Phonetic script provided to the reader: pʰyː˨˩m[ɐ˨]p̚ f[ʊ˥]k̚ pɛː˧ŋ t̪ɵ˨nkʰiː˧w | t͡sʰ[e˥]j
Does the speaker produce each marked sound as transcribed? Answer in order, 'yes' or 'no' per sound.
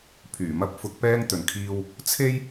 no, no, yes

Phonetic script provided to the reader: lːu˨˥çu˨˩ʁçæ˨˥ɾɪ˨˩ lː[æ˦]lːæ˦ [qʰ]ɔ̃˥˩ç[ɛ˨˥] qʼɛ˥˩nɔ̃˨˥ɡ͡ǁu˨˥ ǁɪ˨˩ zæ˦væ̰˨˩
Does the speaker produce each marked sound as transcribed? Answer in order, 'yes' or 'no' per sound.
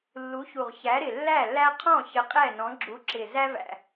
no, yes, no

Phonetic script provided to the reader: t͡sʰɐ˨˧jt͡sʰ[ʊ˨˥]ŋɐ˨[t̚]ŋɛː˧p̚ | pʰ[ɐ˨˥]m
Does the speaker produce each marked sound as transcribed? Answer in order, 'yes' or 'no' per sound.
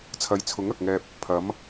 yes, no, yes

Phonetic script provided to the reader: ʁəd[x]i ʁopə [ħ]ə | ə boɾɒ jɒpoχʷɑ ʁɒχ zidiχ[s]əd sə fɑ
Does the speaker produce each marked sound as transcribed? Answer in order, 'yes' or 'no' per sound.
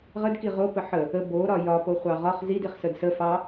no, yes, yes

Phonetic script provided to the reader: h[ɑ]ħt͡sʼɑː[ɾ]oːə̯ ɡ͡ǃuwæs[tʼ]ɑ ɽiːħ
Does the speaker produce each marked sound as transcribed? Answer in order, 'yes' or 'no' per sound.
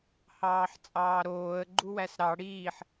no, yes, no

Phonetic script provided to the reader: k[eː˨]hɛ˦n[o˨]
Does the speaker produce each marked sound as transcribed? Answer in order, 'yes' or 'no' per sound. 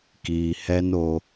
no, no

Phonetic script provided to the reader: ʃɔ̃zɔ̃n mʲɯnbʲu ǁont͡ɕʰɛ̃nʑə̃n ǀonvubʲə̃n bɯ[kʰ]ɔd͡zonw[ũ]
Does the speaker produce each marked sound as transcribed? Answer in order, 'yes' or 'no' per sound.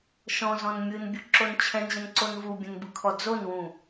yes, yes

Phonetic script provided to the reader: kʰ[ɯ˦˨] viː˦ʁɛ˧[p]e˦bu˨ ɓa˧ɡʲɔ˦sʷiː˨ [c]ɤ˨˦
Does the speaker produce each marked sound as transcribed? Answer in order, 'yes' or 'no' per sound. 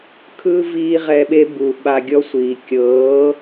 no, no, no

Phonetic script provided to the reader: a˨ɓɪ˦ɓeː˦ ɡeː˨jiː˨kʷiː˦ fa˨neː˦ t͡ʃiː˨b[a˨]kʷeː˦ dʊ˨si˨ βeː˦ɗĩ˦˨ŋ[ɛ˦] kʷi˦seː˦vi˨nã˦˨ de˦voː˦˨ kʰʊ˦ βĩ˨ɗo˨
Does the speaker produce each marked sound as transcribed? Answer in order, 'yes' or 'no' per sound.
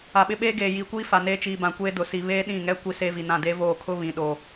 no, yes

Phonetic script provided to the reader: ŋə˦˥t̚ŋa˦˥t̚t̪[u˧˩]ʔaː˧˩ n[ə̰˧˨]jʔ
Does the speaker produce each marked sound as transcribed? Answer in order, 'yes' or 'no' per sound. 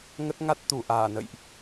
yes, yes

